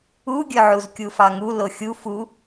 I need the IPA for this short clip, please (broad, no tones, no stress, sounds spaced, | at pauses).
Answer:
u ɡʲ ɵ ʕ u z kʲ u f ɑ ŋ u l o xʲ u f u